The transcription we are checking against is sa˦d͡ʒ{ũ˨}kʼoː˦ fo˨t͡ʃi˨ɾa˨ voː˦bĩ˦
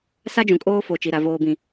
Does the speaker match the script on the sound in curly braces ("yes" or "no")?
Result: yes